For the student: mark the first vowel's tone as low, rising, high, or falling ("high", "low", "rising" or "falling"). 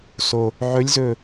low